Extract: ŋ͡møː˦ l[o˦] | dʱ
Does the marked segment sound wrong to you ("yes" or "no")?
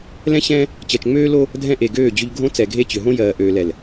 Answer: no